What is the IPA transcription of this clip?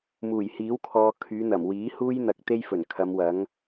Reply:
muː˨˩jhiː˨˥wkʰɔː˨ kʰyː˨˧n̪ɐ˨˩mwiː˨˥huː˥j n̪ɐ˧k̚t̪e˥j fɵ˨˩nkʰɐ˨˧mwɐ˨˥ŋ

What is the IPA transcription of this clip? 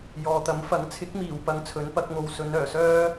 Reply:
jɔː˨t̪ɐ˨˥mfɐ˨˥ŋ t͡sʰɪ˨˥k̚miː˨˩wpɐ˨˧ŋ t͡sʰɵ˨˥npɐ˨˥k̚ŋo˧w sɵ˨˧nœː˨˩sœː˥

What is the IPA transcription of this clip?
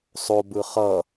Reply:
sˤobɯ χʌ

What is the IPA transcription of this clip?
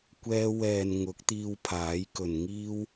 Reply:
kʷɛː˧ wɛː˨n ŋʊ˨˥k̚t̪iː˧wpʰaː˨˥jkɵ˨n ŋiː˥w

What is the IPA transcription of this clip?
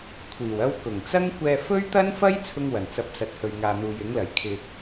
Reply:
kʷʰiː˨˩w ɐ˥w kʊ˨˩ŋt͡sɐ˥ŋ kʷɛː˧fɵ˥ɥt̪ɐ˥n fɐ˥j t͡sʰʊ˥ŋwɐ˨˩n t͡sɐ˧p̚sɐ˨t̚ hɵ˨ɥŋaː˨n̪uː˨j ɪ˨˥ŋlɐ˨˩j kʰɪ˧k̚

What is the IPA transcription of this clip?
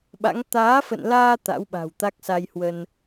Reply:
ɓa̰˧˥ŋ t̪aː˨˦fə̰˧˨nlaː˧ t̪a̰˧˥wɓa̤˨˩wt̪a˦˥k̚sa˧j hwə˧n

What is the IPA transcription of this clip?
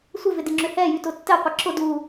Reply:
sʷɪvɪdɪŋ͡ǁʏ hɛ jytʊtːɛ qʷɐǁʊ du

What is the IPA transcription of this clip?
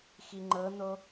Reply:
xiŋ͡ǃɤn̪o

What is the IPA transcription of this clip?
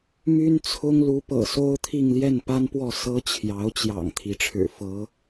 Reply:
my˥nt͡sʰʊ˥ŋ lu˧˥pɤ̰˨˩so˥ʊ̯t̪ʰi˥˧ŋ ljɛ˥˩npa˥npwɔ˥˩ sɤ˥t͡ɕʰjɑ˧˥ʊ̯t͡ɕjɑ̰˨˩ŋ t̪ʰi˧˥ʈ͡ʂʰɻ̩˨˩ fɤ˧˥

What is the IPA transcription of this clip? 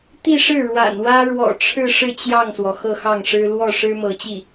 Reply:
t̪i˥˧ʂɻ̩˥˩ ɻwa̰˨˩nwä˥ ɻwɔ̰˨˩ʈ͡ʂʰɻ̩˥˧ʂɻ̩˥˧ t͡ɕjɑ˥˩ŋswɔ˩ xɤ˥˧xɑ˥˩ŋʂɻ̩˥ lwɔ˥˩ʂɻ̩˥ mɤ˧˥t͡ɕi˥˩

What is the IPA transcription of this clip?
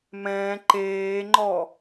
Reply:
mɛ̃ː ǃeːŋ͡ǃɔ

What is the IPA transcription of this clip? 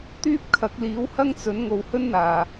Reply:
t̪yː˥p̚kʰɐ˨˥k̚liː˨˥whɐ˥ŋ t͡sɵ˨˥n ŋo˨whɵ˥nn̪aː˨˩

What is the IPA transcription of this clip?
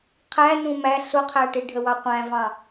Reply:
qʰæ nũmæ ɬʊqʰæʈi ɖʱəwɑqʷæ̃vɑ̃

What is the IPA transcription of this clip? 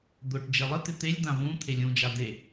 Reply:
d̪ʊʈ d͡ʒelˠɪt̪ɪ t̪elʲd̪ã vũ t̪ʰelʲũd͡ʒa d̪e

